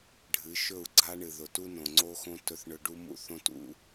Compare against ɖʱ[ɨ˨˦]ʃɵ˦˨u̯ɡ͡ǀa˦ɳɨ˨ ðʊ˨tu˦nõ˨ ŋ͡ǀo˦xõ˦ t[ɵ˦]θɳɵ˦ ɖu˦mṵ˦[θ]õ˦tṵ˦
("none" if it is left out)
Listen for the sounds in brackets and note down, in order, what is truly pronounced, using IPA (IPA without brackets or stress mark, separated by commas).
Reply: ɨ˨˦, ɵ˦, θ